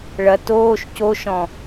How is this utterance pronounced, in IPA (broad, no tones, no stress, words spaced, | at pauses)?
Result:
ɭɐ toːʃ coʃɔ̃